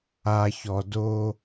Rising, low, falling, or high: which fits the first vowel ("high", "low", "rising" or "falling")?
low